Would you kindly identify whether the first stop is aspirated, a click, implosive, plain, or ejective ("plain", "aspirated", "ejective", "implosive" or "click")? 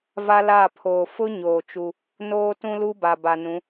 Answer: aspirated